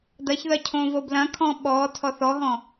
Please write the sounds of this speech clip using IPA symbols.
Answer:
d ɐ ç ð ɐ cʰ õ v o b l ɐ̃ kʰ ɔ̃ ɓ ɔ tʰ ɔ θ ɔ ɦ ɔ̃

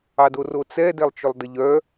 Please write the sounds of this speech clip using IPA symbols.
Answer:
ɑ d o r o t͡s ɛ d ɛ lˠ t͡ʃ ɵ lˠ d ə ʎ œ

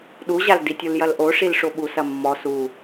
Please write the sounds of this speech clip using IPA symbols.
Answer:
ɗ u ʑ a l d i tʲ u l j ɐ l ʔ o ʂ i l ʂ o ɓ u s ɐ mː ɔ s u

